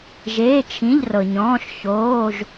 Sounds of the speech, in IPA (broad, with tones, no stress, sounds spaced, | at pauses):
ʒ eː˧˥˧ t͡ʃʰ ĩ˧˥˧ ʎ r ɤ˨ ɲ ɔ̃ː˧˥˧ ʃ ç oː˧˥˧ ʒ